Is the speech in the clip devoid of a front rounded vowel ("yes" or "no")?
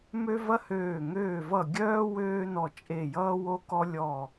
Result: no